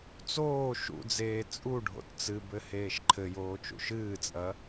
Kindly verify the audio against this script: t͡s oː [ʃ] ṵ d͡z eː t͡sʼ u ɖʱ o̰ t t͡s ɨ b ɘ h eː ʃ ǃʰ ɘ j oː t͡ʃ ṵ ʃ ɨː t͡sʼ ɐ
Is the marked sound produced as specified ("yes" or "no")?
yes